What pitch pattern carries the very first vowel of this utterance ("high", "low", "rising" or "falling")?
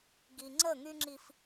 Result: low